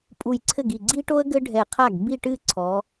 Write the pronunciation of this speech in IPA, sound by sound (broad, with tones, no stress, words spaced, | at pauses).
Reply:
pʼu˧˩jǀʰɘ˥˩ɡi˧˩ ɡ͡ǀi˥ʈo˥ə̯ ɡɘ˥ɖʱɛ˧˩qʰa˥˩ɡ bi˥˧ʈɨ˥˧ ǀʰɔ˨˦